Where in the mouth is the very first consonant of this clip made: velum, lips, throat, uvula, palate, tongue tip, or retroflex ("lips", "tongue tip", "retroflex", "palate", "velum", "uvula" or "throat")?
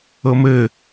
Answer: lips